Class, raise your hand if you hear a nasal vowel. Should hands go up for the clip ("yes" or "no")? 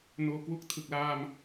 no